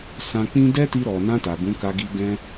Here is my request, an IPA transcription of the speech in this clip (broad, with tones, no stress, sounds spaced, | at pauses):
s ã˧ k͡p ĩ˦ d ɛ˦ t i˧ ɾ ɔ˨ n ã˧ t a˨ b ũ˨˦ k a˧ ɡ i˧ ɡ ɛ̃˦